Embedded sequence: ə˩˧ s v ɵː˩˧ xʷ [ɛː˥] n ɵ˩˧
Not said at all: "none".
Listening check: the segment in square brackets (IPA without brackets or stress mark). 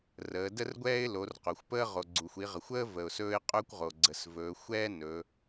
ɛː˥